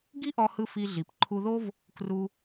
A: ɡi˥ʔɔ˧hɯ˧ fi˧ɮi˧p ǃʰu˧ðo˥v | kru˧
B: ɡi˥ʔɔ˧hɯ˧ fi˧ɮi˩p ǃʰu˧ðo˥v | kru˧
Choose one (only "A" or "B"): B